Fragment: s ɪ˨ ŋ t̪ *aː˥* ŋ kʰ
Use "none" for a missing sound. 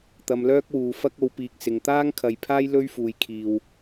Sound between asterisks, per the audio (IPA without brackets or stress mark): aː˥